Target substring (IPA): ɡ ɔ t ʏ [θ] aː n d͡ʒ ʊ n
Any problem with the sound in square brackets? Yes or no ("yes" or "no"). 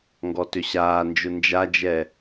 yes